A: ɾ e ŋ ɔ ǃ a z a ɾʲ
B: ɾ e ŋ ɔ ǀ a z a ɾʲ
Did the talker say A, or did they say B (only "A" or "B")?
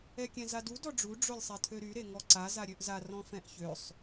B